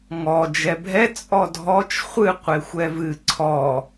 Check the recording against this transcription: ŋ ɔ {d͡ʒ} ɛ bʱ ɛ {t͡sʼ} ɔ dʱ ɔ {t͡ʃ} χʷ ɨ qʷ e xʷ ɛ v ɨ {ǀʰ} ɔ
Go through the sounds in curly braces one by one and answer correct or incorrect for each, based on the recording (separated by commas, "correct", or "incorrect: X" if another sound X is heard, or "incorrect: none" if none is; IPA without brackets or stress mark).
correct, correct, correct, correct